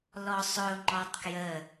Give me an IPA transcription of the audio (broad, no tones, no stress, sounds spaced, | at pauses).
l ɔ sˤ ɵ ʊ̯ ŋ͡ǃ ɔ tˤ k j ə